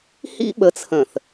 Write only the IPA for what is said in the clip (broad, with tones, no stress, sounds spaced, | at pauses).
h ḭ˦ ɓ ə˨˦ t͡sʰ ə̃˨ θ